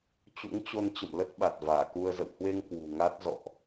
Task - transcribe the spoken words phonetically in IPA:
t͡ɕ ṵ˧˥ ŋ t͡ɕ o˧ n t͡ɕ ə̰˧˨ m l ə˦˥ t̚ ɓ a˨˩ t̚ v aː˧˩ k u˧ ə̯ z ə̰˧˨ w h w e˧ ŋ k w ṳ˨˩ ŋ a˦˥ t̚ z ɔ̰˧˨ ʔ

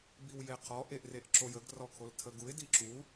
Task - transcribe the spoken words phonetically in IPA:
b i w j e qʰ ɔ ʔ e ʔ r e ʔ ǁ o j ə ɡ r ɔ kʰ o l tʰ ə ɡ u ɪ̯ d i ǁ u

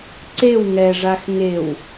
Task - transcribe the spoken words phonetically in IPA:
ǀ e w ŋ ɛ ʐ a x ŋ e w

